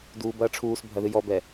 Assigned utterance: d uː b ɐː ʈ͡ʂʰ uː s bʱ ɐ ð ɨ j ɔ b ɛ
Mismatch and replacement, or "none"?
none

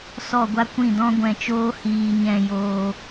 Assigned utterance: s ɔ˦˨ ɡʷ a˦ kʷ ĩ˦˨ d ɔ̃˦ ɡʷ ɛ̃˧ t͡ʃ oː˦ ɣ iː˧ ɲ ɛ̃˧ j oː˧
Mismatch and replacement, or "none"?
ɣ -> h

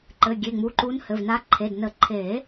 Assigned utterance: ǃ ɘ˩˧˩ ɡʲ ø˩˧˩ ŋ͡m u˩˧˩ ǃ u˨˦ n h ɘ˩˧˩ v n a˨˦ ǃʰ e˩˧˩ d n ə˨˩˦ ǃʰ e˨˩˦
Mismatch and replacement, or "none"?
ø˩˧˩ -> e˩˧˩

